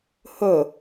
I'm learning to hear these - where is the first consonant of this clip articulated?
throat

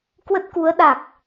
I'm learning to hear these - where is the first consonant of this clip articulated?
velum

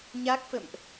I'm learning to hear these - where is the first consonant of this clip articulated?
palate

